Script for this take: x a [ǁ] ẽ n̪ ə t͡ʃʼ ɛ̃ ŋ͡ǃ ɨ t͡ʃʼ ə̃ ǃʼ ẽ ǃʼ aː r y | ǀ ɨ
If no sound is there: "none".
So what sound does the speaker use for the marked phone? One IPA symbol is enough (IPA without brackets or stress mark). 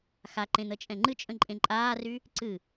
ǃ